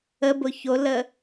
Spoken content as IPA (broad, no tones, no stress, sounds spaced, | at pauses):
ə b ʊ ç o l ə